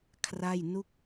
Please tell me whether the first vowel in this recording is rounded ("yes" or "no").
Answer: no